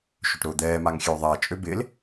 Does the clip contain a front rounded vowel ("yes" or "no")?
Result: yes